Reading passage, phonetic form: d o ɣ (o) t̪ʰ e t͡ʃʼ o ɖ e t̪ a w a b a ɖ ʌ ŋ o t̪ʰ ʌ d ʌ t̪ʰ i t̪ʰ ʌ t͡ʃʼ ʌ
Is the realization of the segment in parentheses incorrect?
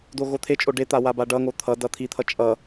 no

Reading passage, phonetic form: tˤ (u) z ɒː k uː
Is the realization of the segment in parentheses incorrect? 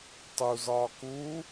no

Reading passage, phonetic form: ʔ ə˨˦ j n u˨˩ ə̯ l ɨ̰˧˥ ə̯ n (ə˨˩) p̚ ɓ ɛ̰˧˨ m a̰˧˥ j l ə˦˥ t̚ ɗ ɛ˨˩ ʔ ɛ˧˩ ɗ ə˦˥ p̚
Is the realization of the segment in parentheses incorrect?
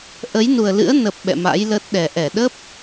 no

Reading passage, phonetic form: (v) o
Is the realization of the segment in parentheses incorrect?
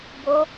yes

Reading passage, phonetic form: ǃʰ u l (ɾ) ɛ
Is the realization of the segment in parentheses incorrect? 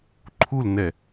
yes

